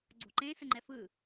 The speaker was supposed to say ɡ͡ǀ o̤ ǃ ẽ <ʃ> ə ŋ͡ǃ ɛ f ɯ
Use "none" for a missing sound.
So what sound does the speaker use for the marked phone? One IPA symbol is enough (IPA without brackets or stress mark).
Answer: s